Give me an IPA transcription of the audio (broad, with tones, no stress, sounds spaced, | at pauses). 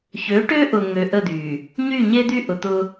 ç ø˨˦ ʈ ø˦ ʔ ʊ˨ ŋ ø˨ ʔ ə˦˨ d̪ y˨ | ɲ y˦˨ ɲ e˦ d̪ y˦ ʔ ʊ˨ t̪ ʊ˦